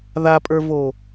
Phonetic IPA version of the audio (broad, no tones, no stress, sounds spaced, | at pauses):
ð a pʼ ə˞ v o